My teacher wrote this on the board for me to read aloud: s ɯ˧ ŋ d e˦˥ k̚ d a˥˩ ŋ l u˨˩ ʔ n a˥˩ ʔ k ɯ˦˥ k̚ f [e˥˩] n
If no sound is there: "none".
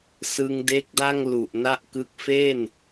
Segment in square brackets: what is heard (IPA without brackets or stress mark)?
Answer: e˥˩